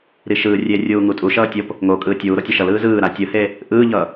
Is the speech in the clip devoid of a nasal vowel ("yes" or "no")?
yes